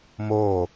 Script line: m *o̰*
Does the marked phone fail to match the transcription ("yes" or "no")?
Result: yes